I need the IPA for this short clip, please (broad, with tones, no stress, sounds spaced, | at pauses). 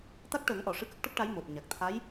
t̪ a˦˥ k̚ ʈ əː˨˩˦ ŋ ʔ ɔ˨˩˨ ʂ ɨ˧˥ k ə˦˥ k̚ ʈ ə˦˥ k̚ ʈ a˧˥ j m o˨˩ t̚ ɲ a˨˩ k̚ t̪ʰ a˧˥ j